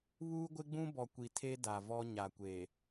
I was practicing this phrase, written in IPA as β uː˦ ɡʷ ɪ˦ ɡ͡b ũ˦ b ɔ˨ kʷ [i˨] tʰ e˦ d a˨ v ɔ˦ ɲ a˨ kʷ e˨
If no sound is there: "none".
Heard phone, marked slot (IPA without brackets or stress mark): i˨